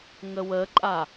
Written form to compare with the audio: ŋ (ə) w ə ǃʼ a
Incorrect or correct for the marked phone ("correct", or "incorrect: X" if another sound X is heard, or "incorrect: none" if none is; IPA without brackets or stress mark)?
correct